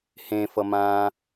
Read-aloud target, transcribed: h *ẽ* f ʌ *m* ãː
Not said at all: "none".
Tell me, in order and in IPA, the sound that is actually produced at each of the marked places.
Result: ẽ, m

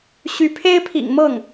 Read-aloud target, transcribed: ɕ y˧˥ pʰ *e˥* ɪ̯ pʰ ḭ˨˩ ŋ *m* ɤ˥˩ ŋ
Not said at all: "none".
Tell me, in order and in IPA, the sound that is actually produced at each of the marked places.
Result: e˥, m

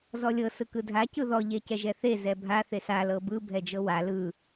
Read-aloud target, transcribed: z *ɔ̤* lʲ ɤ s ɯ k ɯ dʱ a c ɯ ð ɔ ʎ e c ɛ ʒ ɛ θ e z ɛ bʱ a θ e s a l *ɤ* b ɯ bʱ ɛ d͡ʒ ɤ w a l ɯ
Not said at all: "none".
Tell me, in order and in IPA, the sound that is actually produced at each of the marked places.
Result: ɔ, ɤ

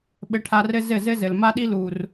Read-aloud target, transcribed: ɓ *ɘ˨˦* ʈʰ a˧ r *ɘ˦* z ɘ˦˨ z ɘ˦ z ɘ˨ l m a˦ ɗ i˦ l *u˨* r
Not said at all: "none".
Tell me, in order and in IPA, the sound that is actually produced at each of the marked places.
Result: ɘ˨˦, ɘ˦, u˨

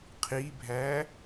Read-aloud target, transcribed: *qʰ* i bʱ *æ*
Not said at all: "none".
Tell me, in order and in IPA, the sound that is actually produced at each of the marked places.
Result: qʰ, æ

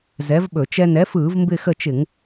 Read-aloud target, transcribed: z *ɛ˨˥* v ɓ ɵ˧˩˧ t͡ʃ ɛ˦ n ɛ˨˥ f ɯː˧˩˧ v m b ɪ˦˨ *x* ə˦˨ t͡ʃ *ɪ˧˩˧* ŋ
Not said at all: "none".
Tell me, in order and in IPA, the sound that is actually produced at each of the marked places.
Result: ɛ˨˥, x, ɪ˧˩˧

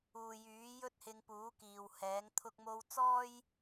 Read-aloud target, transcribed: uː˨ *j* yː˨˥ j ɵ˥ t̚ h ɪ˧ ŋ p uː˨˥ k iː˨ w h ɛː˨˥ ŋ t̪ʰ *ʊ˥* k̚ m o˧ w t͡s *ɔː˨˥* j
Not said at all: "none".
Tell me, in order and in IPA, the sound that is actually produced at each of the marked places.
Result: j, ʊ˧, ɔː˥

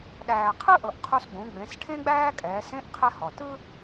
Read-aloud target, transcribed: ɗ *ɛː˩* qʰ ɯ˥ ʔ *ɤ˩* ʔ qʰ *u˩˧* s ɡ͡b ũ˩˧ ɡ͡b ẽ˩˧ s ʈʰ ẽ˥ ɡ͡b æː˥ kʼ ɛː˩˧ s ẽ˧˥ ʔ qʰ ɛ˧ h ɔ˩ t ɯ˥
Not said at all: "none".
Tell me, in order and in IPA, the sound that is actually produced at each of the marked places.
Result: æː˩, ɤ˩, u˧

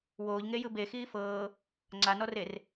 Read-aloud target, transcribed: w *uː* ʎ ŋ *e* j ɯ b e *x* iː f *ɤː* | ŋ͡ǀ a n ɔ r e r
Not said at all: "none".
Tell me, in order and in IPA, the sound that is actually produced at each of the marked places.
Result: oː, e, x, ɤː

